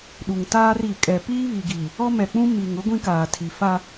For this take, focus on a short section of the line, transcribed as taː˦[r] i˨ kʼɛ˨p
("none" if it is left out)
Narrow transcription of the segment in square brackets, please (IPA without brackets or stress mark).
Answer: r